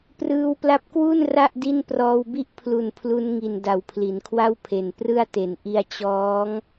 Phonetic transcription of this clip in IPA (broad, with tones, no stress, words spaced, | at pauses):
prɯː˧wpla˦˥p̚kwu˥˩n ra˥˩ʔdi˥˩n prɔː˧wbi˥˩ʔpʰlu˨˩n pʰlu˧n ŋi˨˩n da˨˩wpʰli˩˦nkʰwa˥˩wpʰe˨˩n prɯ˥˩a̯te˩˦n ʔi˧a̯ t͡ɕɔː˦˥ŋ